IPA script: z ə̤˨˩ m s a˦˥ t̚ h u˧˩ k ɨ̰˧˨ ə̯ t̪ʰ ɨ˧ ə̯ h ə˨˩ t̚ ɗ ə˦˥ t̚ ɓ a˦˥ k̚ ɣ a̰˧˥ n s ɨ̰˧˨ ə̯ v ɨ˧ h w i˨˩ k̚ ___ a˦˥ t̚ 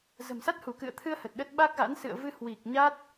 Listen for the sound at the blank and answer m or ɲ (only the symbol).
ɲ